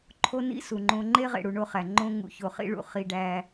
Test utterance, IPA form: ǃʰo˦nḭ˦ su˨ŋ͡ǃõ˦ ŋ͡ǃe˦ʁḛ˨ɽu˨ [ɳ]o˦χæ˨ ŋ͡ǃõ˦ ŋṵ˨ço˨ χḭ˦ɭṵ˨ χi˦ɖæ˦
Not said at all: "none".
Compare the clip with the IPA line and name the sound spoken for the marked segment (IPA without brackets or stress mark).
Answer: ɳ